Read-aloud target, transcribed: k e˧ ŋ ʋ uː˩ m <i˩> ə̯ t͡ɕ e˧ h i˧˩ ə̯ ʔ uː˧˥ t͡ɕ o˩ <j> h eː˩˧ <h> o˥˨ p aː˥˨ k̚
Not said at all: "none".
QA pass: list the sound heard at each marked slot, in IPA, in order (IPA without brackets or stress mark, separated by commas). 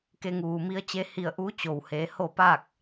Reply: i˧˥, w, h